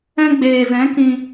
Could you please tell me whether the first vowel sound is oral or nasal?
nasal